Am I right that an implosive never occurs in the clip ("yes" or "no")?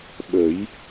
no